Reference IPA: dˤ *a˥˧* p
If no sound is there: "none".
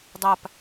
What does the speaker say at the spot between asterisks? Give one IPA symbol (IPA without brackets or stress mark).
a˥˧